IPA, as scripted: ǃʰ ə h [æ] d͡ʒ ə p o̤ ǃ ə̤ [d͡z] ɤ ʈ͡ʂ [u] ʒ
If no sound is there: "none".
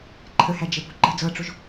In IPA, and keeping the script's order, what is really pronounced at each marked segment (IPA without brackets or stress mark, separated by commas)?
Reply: æ, d͡z, o